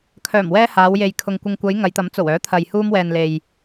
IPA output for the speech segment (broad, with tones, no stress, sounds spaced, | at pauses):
kʰ œː˨˩ m w ɛː˧ h aː˨˧ w j e˨ j kʰ ʊ˨ ŋ kʷ ɪ˨ ŋ kʷ ɐ˨˧ j ŋ ɐ˨˧ j t̪ ɐ˨˥ m t͡s o˨˩ w œː˨˥ t̪ʰ ɐ˨ j h uː˧ m w ɛː˨ n l e˨ j